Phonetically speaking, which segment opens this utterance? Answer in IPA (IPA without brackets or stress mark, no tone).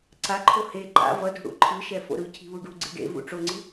ǀ